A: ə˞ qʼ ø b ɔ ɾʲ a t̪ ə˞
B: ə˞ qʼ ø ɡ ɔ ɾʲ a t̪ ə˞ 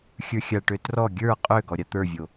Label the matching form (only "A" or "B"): B